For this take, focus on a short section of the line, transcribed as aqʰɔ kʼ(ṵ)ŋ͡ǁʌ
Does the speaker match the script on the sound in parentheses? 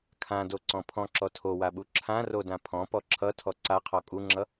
no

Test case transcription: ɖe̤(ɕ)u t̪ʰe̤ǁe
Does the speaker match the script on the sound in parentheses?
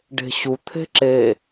yes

